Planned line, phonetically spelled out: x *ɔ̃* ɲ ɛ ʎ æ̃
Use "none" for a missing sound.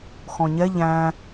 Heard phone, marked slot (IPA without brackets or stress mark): ɔ̃